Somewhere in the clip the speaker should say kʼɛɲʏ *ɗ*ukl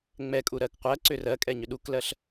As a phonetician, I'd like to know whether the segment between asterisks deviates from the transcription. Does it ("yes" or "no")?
no